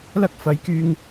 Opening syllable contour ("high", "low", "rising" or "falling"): high